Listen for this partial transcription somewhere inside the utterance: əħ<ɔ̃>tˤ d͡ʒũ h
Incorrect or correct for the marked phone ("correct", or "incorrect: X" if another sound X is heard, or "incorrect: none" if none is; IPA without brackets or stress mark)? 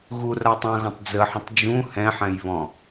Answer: incorrect: ə̃